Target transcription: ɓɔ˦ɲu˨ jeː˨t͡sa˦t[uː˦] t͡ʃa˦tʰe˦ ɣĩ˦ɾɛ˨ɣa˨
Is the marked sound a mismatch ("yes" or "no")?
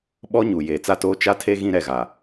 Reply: yes